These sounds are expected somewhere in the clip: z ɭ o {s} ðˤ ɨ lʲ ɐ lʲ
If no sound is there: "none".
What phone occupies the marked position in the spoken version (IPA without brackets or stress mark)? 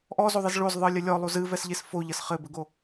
z